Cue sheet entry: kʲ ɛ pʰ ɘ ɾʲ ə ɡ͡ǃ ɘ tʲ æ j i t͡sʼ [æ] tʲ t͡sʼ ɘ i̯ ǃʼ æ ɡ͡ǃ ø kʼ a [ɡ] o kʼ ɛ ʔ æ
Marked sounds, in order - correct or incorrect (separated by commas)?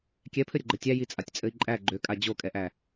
incorrect, incorrect